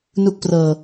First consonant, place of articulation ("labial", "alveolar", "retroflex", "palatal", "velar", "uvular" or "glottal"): alveolar